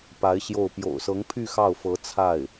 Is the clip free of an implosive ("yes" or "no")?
yes